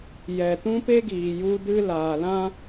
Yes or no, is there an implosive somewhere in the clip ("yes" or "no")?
no